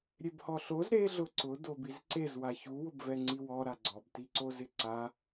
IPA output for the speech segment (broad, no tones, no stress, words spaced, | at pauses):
ɾʲebhɔɬoz ɾe ɮʊǀʊ dobizǀez waçu wʊbvɛŋ͡ǀiwɔ ɾaɡ͡ǀɔb tiǀozɪǀa